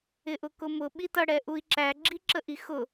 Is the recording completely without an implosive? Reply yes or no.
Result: no